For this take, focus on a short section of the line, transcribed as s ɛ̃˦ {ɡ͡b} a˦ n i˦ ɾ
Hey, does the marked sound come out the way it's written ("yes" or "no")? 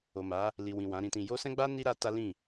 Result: yes